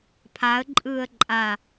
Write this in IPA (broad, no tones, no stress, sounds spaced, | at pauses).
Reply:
pʰ a ə̯ ǃʼ ɯː ə̯ ǃʼ a